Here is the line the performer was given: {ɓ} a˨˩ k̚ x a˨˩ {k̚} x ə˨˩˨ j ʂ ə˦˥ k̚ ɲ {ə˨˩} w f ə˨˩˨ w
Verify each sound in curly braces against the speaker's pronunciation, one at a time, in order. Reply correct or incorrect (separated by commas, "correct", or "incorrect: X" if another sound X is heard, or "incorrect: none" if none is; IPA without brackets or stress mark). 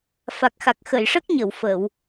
incorrect: f, correct, incorrect: ə˨˩˨